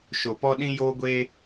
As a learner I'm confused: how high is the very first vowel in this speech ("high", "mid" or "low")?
mid